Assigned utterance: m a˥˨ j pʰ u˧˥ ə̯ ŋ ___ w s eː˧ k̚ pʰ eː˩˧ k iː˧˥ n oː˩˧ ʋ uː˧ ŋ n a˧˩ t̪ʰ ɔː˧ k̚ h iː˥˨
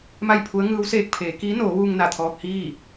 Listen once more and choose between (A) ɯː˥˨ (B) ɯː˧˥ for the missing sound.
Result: B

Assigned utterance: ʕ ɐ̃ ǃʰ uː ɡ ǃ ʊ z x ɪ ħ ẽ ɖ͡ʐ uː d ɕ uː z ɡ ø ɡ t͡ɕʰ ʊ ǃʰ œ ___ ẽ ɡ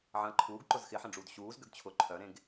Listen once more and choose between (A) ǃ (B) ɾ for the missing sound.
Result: B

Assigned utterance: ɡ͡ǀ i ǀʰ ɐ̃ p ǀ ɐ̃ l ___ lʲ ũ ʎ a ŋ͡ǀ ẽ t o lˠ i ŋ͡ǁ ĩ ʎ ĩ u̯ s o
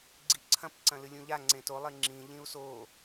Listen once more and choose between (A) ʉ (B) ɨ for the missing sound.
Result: B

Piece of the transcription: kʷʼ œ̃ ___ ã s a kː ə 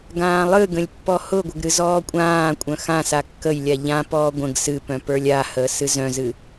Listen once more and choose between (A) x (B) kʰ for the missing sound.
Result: A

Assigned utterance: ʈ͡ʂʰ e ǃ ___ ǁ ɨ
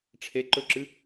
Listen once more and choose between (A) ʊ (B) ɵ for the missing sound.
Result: B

